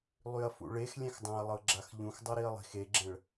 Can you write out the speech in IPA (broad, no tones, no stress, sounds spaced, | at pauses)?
lˠ y ɐ̯ f ṵ ɭ e x lʲ ɛ̃ x dˤ ã ɐ̯ lˠ ɤ ɡ͡ǁ a x ʎ ũ x dˤ ɤ ɾ i ɐ̯ lˠ i̤ x e ɡ͡ǁ ɛ̃ ɭ